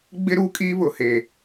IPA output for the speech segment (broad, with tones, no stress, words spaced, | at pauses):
ɡ͡bɪ˦ ɾu˦kʼiː˦βʊ˨ he˨